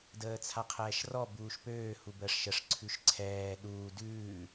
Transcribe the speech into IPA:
d əː t͡sʰ a qʰ ɛː ʃ r ɔ b uː ʃ p øː h u b əː ʂ ʃ ə ʂ ǀʰ ʉ ʃ ǀʰ ɛː ɗ uː d ʉː

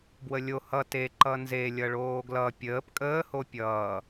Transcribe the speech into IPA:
b w ə lʲ o h ʌ t e ǃ ʌ n z e lʲ ʌ ɭ oː ɡ l ʌ pʲ əː p kʼ əː h o pʲ ʌː

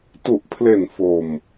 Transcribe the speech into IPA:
t u˨˩ ʔ pʰ l e˨˩ n f o˨˩ m

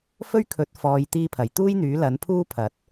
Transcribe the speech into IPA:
f ɵ˥ ɥ kʰ ɵ˨˥ t̚ f ɔː˨˧ j t̪ iː˧ pʰ ɐ˨˩ j t̪ uː˥ j n̪ yː˨˥ l ɐ˨˥ n pʰ uː˥ pʰ ɐ˨˥ t̚

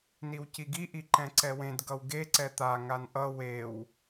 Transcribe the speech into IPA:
n i w c i ɡ i ʔ i ǃ ɛ̃ ǀ ɛ w ẽ d ɡ ʌ w ɡ e ǀ ɛ t̪ a ŋ a n ʔ ʌ w e w

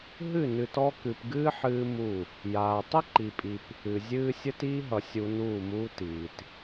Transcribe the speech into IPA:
ɦ ɨ˦˨ n ɨ˨ t ɔ˦ k ɨ˨ p ɡ ɨː˦ ħ ɨː˦ m u˦˨ | j aː˨ tˤ ə˦ ǃ i˨ pʼ i˨ p | ɨ˨ zʲ ɨː˦ sʲ ə˦ t iː˦ ɦ ʌ˨ sʲ u˦ n uː˦˨ m uː˦ t iː˨ t

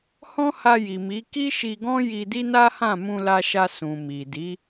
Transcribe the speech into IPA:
h ɔ̃˦ h a˧ j i˨ m i˨˦ k i˦ ʃ i˧ ɡ ɔ̃˦ j i˧ d i˦ n a˦ h ã˦˨ m ũ˧ l a˧ ʃ a˧ s ũ˨ m i˨ d i˨˦

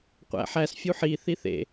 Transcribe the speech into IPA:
qʷ æ̰ ħ æ s fʲ u ħ i θ i θ ḛ

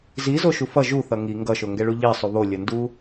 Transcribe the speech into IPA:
z i z o ʃ u f ʌ ʒ u θ ʌ ŋ i ŋ ɡ ʌ ʃ o ŋ ɡ ɛ ɭ u ʎ i sˤ u β o lʲ ʌ n d u

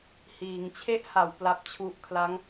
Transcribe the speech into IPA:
h iː˩˦ ŋ t͡ɕʰ e˦˥ ʔ h a˨˩ w p l a˥˩ p̚ t͡ɕʰ u˦˥ ʔ kʰ l a˦˥ ŋ

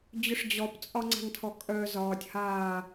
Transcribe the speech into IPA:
d͡ʑ ʊ ʂ d͡ʑ ɔ p t͡sʼ ɒ ŋ͡ǀ a̤ ŋ tʰ ɔ kʼ œ z ɒː tʲ h aː

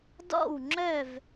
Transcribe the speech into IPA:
d ɔ̰˥˨ w ŋ͡ǁ œ˥˨ v

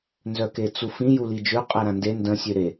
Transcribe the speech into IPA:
n z œ k e t͡s u f ĩ j u l i d͡ʒ ø qʼ ɛ ɾ ã n d e n d ə̃ sʲ ø ɾ e

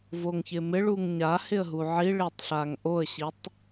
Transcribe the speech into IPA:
v o ŋ ç ɪ m ɪ ɭ u ŋ ɲ a h ɪ ə̯ ɦ u ʕ i ɭ e tˤ ɬ a ŋ ʔ o ə̯ ɕ i tˤ

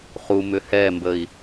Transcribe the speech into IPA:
χ u m ʏ h ɛ m b ə i̯

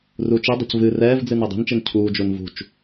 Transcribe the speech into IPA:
r u t͡ʃ i dˤ ṳ c v ɨ r ɛː v d͡z ɨ n ɤ dˤ i̤ n t͡ʃ i n cʰ uː d͡ʒ u n v ṳ t͡ʃ

